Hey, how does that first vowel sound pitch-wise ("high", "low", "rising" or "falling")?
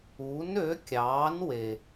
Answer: rising